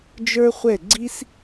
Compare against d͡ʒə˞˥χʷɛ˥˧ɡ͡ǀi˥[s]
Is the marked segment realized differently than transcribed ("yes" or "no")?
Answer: no